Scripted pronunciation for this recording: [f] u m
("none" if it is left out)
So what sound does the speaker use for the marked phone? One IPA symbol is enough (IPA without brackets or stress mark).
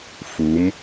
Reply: f